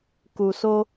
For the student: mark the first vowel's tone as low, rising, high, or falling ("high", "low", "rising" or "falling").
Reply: low